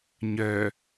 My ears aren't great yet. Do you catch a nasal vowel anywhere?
no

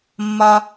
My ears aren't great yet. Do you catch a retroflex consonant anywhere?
no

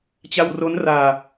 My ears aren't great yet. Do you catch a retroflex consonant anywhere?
no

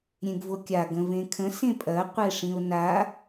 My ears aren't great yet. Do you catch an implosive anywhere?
no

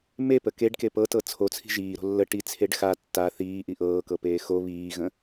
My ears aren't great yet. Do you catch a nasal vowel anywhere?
yes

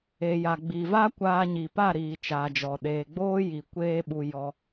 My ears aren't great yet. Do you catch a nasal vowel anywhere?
no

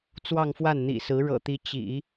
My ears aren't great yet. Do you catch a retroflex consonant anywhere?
yes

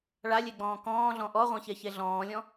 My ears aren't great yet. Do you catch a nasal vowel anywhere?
yes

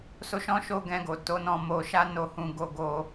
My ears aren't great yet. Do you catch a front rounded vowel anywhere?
no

